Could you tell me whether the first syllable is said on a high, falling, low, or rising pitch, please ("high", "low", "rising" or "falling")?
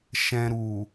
low